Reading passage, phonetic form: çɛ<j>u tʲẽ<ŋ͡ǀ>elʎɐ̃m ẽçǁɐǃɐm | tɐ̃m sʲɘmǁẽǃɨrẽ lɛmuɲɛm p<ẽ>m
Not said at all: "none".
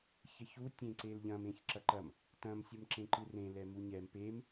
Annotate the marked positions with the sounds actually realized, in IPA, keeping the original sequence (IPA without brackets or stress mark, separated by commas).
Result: ç, ǀ, e